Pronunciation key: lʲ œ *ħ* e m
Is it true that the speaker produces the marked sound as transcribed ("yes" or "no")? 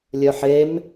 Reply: yes